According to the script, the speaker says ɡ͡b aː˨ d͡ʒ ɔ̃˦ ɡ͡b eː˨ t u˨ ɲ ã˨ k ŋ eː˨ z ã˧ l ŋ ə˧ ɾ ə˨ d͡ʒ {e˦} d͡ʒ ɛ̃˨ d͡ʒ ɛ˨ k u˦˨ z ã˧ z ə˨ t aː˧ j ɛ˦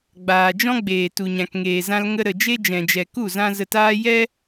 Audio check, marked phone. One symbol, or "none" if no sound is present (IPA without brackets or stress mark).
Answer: e˦